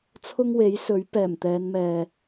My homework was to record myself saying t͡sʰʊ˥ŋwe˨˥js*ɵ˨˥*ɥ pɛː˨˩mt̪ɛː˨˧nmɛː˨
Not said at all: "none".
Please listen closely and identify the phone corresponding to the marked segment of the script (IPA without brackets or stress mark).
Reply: ɵ˨˥